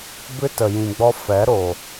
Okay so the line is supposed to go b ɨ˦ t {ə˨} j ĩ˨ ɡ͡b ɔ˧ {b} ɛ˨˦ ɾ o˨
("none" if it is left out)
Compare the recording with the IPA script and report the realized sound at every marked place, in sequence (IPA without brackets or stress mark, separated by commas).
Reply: ə˨, f